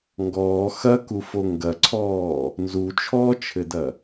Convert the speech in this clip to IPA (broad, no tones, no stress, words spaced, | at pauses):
ŋɡɔː xɐkufo ŋɡɐǀʰɔː | nzut͡ʃʰɔːt͡ʃʰɘdɐ